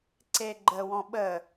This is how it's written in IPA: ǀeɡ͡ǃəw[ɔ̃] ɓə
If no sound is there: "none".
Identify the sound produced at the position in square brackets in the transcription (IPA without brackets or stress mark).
ɔ̃